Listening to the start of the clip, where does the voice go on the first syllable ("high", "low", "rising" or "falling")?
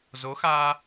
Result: rising